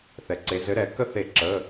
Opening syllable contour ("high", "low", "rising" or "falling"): low